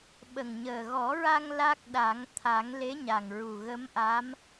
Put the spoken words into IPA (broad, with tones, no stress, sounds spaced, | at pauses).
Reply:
ɓ ə˨˩ ŋ ɲ əː˨˩ ɣ ɔ˨˩˦ ɹ a˧ ŋ l a˦˥ k̚ ɗ a˨˩˦ ŋ t̪ʰ a˨˩˦ ŋ l e˧˥ ɲ a˨˩ ŋ ɹ u˨˩ ɣ ə˧˥ m ʔ a˧˥ m